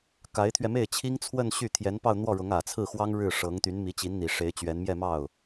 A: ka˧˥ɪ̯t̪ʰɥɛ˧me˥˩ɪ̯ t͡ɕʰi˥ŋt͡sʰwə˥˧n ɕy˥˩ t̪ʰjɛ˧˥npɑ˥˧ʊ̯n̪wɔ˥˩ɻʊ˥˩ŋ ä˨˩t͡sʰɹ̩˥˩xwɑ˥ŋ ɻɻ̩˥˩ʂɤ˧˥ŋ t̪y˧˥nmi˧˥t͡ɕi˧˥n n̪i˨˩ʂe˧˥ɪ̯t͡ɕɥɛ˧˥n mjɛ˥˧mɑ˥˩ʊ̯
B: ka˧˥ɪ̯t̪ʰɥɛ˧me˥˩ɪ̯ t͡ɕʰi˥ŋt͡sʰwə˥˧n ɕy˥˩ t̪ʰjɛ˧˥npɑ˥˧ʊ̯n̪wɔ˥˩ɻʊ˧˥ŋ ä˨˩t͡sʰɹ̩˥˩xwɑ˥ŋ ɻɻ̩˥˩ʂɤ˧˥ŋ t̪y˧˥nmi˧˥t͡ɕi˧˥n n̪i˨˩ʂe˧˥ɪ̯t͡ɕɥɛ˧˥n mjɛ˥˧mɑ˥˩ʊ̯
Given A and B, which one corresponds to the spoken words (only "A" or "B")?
B